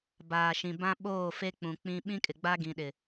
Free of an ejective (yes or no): no